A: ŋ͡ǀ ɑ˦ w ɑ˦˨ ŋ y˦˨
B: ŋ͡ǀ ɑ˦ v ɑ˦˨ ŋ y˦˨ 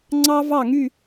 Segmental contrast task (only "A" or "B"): B